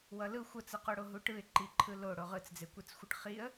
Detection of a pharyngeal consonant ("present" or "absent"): absent